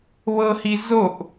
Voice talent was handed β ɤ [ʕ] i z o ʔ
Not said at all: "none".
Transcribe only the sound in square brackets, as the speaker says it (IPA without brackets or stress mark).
h